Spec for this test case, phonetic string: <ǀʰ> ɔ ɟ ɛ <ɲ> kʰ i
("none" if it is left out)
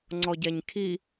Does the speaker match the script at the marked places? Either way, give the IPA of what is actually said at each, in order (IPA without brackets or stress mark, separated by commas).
ŋ͡ǀ, ɲ